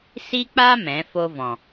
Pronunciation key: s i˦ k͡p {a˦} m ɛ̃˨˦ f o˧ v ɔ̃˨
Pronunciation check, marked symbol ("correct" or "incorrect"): correct